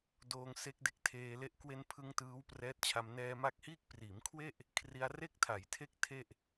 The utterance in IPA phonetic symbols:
doː˧ŋse˦˥k̚de˦˥k̚tʰeː˧ le˦˥ʔ kwe˧npʰɯ˧ŋ tɯː˦˥wprɛː˦˥t̚t͡ɕʰa˧m nɛː˧ma˦˥k̚hiː˥˩k̚ priː˩˦mkʰwe˥˩ʔ | kʰri˧a̯re˥˩k̚tʰa˩˦j tʰe˥˩k̚ tʰe˥˩ʔ

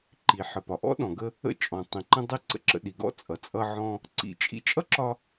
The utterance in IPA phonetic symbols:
ǃi˩ħə˩ pɒ˩ʔɔ̰˥ɗɔ̃˩ɡə˧ | ə̰˧t͡ʃʼɔ̃˩ tˤĩ˩ǃə̃˧dˤi˧ ǀə̰˥ǁə̰˧ɗi˩ ɡɔ̰˥ t͡sʼʌ˩t͡sʼʌ˧ʕɔ̃˧ | ǀḭ˧ t͡ʃʼḭ˧t͡ʃʼʌ˥ǁɒ˧

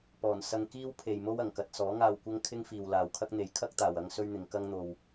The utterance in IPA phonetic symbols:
pɔː˨˩nsɐ˧ŋkiː˥w pʰe˨jmo˥w ɐ˨˩ŋkɐ˧t̚ sɔː˨˥ŋaː˧wkʷɐ˥ŋ kʰɪ˥ŋfiː˨wlaː˨wkʰɐ˥k̚ n̪e˨˥jkʰɐ˥k̚t̪aː˨w ɐ˥ŋsɵ˥ɥn̪ɪ˨˧ŋ kɐ˥ŋn̪o˧w

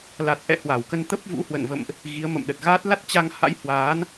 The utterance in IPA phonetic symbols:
la˨˩t̚ʔɛ̰˧˨ hwa˧˩wkə˧nt̪ə˦˥p̚ vṵ˧˥ hwə̰˧˨nvə̰˧˨mʔ | ɣi˨˦ə̯mə̰˧˨mɗə˨˩t̚ɣaː˦˥t̚ la˦˥t̚t͡ɕa˧ŋ ha̰˧˥jhwaː˨˦n

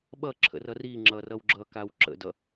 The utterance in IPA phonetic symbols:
ɓʌǁʰə̰rʌ riŋ͡ǁʌrʌw ɡ͡ǁʌkaw ǁə̰dʌ

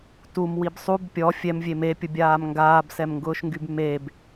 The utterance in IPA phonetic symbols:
tumwib sˤub pʲɔ fʲɛmvʲe mepʲʊbʲaːm ŋɡaːbsɛmŋɡʊːʃŋɡyb meb

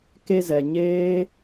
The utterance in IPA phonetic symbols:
ke˧zɛ˨ ɲeː˦

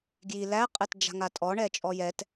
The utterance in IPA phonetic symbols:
ɡji læ qʼɛtd͡ʒa̤ŋatʼɔ ɳɛt͡ʃʼɔjɛt

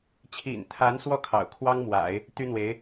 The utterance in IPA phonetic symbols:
t͡ɕʰḭ˨˩nt̪ʰa˧˥n swɔ˥˩ kʰɑ̰˨˩ʊ̯ kʰwɑ˥ŋmwa̰˨˩˦ɪ̯ | t̪y˥n̪we˧˥ɪ̯

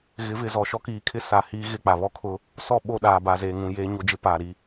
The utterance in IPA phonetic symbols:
ɣɪ˨˦vɪ˨zɔ˨ʃɔ˦ kiː˨kʰɪ˦ sa˨ hiː˦ ɣɪ˦˨k͡pa˨ βɔ˦kʰʊ˦ | sɔ˦˨ɓo˦˨ ɗaː˨ba˨zeː˨ŋũ˨ jeː˦ɲo˦d͡ʒɪ˦paː˨ ɾi˦

